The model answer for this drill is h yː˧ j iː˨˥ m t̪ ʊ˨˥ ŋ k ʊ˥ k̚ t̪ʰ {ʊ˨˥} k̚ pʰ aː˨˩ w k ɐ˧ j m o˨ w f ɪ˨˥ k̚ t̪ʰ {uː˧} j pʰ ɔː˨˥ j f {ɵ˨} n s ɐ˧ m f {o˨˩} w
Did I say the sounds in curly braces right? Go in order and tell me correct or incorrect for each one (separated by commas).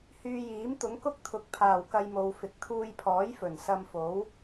correct, correct, incorrect, incorrect